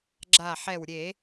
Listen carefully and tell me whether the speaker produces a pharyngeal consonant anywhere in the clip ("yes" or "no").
yes